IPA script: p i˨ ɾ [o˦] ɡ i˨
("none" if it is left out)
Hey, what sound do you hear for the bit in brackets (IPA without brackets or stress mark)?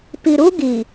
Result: u˦